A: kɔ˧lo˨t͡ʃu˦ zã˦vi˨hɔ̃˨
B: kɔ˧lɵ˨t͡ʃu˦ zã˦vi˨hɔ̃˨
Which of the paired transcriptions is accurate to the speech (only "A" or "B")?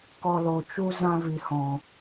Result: A